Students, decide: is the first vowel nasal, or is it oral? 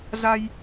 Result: oral